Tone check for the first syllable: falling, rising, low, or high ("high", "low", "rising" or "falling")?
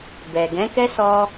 low